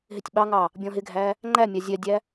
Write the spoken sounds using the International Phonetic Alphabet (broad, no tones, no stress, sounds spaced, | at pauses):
ɦ ɪ tʲ ɓ ɑ ŋ ɑ | bʲ ɔ̃ ɦ ɪ ɡʱ æ | ŋ͡ǃ æ mʲ ɑ zʲ ɛ dʲ æ